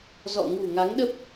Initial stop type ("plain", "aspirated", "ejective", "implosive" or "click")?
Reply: implosive